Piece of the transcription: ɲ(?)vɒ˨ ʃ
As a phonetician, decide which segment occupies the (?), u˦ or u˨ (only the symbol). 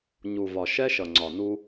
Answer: u˨